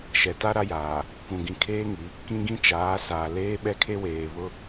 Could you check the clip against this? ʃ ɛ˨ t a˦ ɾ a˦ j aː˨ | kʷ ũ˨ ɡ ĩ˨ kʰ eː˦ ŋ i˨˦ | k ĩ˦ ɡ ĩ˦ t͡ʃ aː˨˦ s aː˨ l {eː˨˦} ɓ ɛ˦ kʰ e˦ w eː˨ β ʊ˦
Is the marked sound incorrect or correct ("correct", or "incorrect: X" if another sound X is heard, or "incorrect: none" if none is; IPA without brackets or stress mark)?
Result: incorrect: eː˦